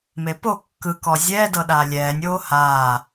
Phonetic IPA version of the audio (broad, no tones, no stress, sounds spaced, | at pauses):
m e p o kː ɯ k ɔ zʲ ɛː d ɤ ɗ aː lʲ ɛː nʲ oː h aː